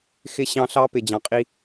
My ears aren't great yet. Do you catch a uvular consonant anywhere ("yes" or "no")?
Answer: yes